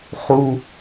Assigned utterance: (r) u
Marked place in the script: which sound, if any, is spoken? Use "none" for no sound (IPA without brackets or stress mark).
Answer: χ